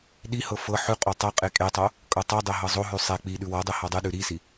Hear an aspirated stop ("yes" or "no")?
no